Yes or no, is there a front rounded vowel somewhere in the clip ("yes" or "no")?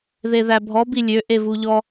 yes